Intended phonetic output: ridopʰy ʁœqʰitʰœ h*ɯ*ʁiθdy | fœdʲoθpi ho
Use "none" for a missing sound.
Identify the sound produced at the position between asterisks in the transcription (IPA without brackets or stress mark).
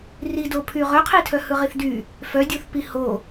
ɯ